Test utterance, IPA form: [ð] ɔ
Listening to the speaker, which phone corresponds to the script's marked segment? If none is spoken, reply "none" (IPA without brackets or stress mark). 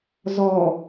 z